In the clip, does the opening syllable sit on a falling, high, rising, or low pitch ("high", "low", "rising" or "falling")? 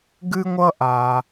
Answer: high